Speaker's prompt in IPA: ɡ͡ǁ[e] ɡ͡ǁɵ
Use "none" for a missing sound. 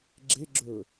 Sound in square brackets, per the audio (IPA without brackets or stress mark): e